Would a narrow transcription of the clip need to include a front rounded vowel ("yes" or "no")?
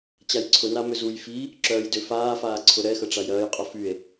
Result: yes